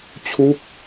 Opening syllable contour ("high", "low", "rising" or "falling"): falling